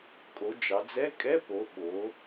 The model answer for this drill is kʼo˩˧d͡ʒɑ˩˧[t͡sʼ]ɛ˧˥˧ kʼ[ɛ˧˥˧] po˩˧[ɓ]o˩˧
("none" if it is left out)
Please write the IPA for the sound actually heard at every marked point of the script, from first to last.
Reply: d͡z, ɛ˧˥˧, ɓ

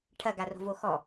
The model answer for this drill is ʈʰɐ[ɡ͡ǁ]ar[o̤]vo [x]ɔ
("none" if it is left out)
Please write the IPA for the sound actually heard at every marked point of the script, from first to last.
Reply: ɡ, o̤, x

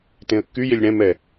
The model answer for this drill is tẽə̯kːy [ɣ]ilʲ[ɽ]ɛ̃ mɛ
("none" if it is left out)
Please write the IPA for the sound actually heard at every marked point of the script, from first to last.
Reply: j, ɽ

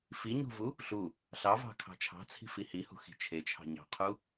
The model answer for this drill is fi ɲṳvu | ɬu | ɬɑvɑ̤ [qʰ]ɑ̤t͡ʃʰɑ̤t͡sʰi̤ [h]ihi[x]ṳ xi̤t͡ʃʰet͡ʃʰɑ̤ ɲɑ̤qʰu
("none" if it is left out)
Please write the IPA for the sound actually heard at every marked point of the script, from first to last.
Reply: kʰ, f, h

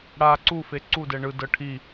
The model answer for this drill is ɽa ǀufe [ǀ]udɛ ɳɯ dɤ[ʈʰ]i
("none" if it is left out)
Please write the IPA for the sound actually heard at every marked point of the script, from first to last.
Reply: ǀ, ʈʰ

